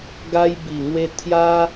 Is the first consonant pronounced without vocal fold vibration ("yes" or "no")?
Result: no